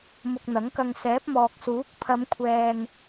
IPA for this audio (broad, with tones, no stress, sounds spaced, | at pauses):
m ʊ˧ k̚ n̪ ɐ˨˥ ŋ k ɐ˧ ŋ s ɛː˨˥ p̚ m ɔː˨ k̚ s uː˨˥ k̚ pʰ ɐ˨˧ m kʷʰ ɛː˧ ŋ